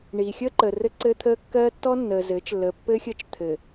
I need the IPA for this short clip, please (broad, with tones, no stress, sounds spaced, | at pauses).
ɳ iː˨ xʲ əː˦ ǃ əː˨ r ɘ˦ ǀ ɘː˦ t̪ʰ əː˦ kː ɜ˦ tː ɔ˦ nː əː˨ z ɘː˨˦ t͡ʃ lː əː˨ pː ɘː˦ xʲ əː˦ t͡ʃ t̪ʰ ɘ˨